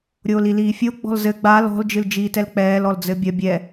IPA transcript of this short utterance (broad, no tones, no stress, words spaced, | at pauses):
ɾʲoːliliːfʲo ɡ͡bɔ̤lzɘ ɡ͡bal ɔ̤l d͡ʒɨld͡ʒiːtɛlk͡pɛːl ɔld͡zɘbʲɐ bʲɛ